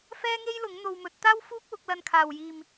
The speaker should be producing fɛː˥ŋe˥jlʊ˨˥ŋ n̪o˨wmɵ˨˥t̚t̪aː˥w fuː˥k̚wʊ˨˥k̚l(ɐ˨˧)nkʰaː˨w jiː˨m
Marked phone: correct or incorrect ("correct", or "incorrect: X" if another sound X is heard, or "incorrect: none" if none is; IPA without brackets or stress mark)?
incorrect: ɐ˧